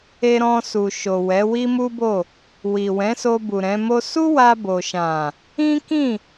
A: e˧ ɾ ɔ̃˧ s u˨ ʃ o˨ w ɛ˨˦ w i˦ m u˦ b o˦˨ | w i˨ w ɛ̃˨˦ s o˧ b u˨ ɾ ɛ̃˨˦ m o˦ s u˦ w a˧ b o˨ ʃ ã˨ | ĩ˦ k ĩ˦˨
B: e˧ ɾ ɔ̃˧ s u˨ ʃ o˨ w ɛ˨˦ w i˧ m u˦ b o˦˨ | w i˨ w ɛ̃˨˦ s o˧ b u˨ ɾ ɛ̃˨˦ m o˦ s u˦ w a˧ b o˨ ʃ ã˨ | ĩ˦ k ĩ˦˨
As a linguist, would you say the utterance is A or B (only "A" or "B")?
A